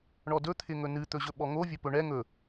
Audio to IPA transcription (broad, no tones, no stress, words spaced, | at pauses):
ɳɔdɵ t̪ʰɪŋɵnɨ t̪ɵʑɵɓɔŋo vʲɵpɵɳɛ ŋɵ